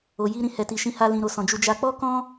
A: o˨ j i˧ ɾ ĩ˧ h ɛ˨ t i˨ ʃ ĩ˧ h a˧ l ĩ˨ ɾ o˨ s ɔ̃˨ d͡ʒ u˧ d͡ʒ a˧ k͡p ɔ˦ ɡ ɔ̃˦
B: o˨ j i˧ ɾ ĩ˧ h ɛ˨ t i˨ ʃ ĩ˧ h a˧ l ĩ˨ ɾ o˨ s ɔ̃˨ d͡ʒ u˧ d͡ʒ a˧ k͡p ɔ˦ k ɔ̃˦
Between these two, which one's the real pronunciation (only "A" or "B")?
B